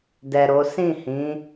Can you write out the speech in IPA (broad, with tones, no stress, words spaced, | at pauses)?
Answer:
dɛ˨ ɾo˨˦ sĩ˦˨hĩ˨˦